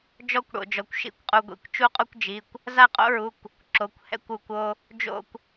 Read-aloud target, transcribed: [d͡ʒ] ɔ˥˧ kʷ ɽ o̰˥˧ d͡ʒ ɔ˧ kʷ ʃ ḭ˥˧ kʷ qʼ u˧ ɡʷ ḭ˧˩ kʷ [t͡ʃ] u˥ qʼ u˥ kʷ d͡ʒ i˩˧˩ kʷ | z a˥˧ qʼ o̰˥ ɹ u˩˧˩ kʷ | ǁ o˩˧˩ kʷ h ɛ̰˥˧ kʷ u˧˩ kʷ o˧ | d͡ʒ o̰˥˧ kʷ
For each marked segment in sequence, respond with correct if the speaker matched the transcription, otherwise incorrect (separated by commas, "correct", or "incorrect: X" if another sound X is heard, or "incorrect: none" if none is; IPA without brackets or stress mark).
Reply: correct, correct